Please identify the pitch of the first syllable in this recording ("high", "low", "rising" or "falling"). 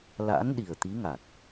rising